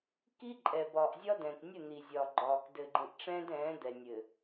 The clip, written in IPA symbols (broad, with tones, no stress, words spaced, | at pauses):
ki˦ǃʼɛ˨ bɒː˨ʔzʲɒ˦dɛ̃ː˨k nʲə˦˨ n̪i˨zʲɒː˨ ɡ͡ǃɒː˨k dɘː˨ɡ͡ǃĩ˨ʔ ʈ͡ʂɛ̃ː˦dɛ̃ː˨˦ d̪ɛ˨nʲɘ˨